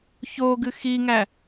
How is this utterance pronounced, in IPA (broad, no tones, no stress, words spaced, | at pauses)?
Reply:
çoɡɨ xiŋæ